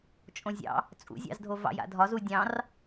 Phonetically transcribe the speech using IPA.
t͡ʃʼ õ zʲ ɑ̰ | t͡sʼ ṵ zʲ ɑ̰ z dʱ o v ɑ̰ j a̰ dʱ ɒ z u dʲ ɑ̃ r

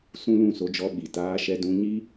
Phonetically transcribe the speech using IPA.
s ũ˦ l ũ˦˨ s o˧ d͡ʒ ɔ˧ ɓ i˨ t aː˧ ʃ ɛ˧ d ũ˧ ɲ i˦

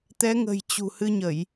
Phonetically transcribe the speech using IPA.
t̪ ɛ˨˦ ŋ ə̤˨˩ j t͡ɕ ṳ˨˩ h ɨ˧ ɲ ə˧˩˨ j

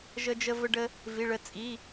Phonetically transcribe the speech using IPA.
ʒ ə˧ d͡ʒ ə˧ v ə˧ ɖ ə˧ | v i˩˧˩ ɭ ə˧ t͡sʼ i˩˧˩

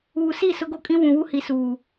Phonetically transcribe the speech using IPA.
uː˨ s i˦˨ s ʊ˦ ɡ o˦ kʼ ĩ˦ w ũ˨ w u˦ h i˨ s uː˨

